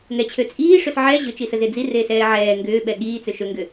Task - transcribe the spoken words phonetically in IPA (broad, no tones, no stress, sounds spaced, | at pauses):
ŋ ɛ t͡ɕʰ ø t͡sʼ iː ʂ ʏ s ʕ ɛ ʑ ʏ t͡ʃ i s ə z e d͡z i r eː s ɛː ʕ ɛː ŋ ɡ ʏː ɓ ɛ ɠ iː t͡s ø ʃ ø ŋ ɡ ʏ